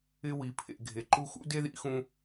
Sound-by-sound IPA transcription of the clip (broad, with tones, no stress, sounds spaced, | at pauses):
ɪ˦ w i˨ pʰ ḛ˨ ɡʱ e˨ ǃ u˦ x ṵ˦ d e˦ ð ḭ˧ x ũ˧